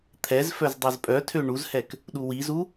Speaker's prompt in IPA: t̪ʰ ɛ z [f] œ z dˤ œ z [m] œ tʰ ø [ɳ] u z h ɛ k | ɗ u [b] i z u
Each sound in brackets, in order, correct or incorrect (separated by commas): correct, incorrect, correct, incorrect